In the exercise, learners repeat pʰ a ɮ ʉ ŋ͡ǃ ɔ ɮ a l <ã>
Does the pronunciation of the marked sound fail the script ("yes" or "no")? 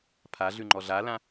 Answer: no